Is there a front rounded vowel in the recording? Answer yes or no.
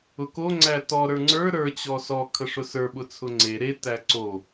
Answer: no